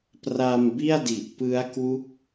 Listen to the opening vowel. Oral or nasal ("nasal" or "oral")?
oral